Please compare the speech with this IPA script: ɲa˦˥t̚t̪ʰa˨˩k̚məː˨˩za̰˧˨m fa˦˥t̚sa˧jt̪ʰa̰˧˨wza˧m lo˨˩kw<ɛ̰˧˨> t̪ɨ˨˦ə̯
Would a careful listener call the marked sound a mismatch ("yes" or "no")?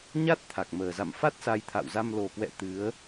no